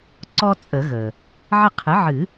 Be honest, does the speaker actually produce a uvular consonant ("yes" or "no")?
yes